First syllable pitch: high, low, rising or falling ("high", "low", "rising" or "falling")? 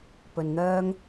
low